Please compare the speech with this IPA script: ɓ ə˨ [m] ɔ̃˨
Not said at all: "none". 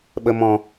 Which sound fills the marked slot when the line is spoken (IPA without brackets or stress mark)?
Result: m